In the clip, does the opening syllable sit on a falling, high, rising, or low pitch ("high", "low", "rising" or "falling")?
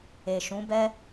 low